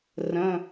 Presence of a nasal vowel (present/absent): present